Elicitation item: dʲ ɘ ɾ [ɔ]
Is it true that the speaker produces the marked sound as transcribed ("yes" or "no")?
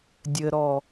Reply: yes